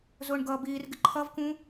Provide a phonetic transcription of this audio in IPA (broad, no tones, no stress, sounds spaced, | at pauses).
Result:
z ʊː ɳ ɡ ʌː b iː r ɡ ɪ ǃʰ ʌ v k ũ